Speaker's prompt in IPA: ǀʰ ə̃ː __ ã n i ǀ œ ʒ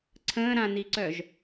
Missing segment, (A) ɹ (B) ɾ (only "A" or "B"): B